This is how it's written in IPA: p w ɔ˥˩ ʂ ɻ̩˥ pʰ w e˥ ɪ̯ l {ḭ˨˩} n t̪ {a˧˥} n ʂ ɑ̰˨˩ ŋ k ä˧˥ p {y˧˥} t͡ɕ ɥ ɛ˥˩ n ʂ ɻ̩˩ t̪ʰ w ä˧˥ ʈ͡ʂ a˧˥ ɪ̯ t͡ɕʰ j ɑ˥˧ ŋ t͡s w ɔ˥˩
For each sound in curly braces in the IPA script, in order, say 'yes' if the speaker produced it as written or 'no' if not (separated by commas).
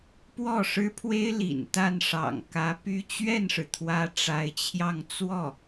yes, no, no